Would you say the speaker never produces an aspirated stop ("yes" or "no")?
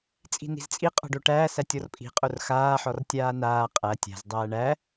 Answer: yes